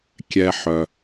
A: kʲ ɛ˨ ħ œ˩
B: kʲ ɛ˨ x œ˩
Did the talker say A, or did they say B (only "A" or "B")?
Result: A